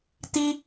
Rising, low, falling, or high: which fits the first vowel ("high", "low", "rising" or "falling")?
high